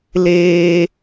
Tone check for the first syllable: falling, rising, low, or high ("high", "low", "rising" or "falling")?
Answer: high